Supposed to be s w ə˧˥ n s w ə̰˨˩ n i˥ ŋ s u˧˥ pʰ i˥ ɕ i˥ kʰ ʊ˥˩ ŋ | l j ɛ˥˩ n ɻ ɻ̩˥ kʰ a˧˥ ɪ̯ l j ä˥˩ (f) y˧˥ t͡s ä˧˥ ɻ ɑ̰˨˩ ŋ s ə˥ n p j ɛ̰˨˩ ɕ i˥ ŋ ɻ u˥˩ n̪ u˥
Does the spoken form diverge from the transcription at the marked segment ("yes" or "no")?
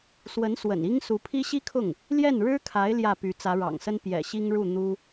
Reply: yes